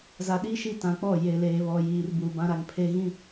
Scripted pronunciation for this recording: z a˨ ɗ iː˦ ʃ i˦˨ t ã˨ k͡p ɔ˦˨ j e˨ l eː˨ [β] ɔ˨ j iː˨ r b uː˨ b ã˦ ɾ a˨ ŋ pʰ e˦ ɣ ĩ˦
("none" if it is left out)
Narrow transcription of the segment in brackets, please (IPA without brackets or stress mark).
β